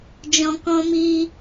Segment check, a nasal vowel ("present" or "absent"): present